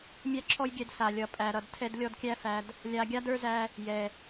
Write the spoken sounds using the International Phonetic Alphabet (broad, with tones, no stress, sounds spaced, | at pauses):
mʲ æ˦ ǁʰ ɔ˦ j ɡʲ ɛ˧ d s a˨ lʲ ʌ˨ pʼ æ˨ ɾ ʌ˨ d tʰ ɛ˧ d lʲ ɔ˧ d kʲ æ˧ f æ˨ d | lʲ a˧ ɡʲ a˦ d ə˞˦ z æ˧ | j ɛ˨